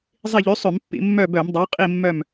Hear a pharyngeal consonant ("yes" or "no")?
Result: no